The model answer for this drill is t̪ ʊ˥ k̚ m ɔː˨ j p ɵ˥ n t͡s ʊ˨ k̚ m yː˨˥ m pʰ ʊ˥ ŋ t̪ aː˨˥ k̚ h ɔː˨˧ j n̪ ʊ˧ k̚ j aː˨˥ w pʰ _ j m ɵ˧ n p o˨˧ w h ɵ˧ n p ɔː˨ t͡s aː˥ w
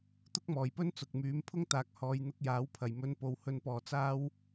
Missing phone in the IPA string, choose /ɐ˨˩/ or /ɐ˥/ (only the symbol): ɐ˨˩